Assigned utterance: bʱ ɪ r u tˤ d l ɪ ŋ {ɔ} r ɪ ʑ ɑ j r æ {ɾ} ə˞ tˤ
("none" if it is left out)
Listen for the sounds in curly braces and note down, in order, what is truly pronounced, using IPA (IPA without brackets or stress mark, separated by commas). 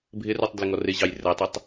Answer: ɔ, tˤ